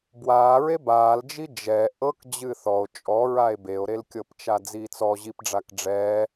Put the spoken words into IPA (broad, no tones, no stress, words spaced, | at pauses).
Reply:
bwaːɹe baːld͡ʒi d͡ʒɛ ʔɤk d͡ʑɨθɔo̯ t͡ʃʼɔɹae̯ beo̯ɾelkʲɤpt͡ʃa d͡ziːt͡sɔʑipɖ͡ʐak ɖ͡ʐɛː